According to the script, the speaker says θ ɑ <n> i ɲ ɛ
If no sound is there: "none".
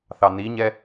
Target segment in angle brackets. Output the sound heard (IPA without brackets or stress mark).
n